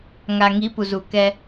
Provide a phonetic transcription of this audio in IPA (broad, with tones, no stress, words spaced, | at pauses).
ŋa˨ ŋi˨˦pu˨zu˨ kɛ˧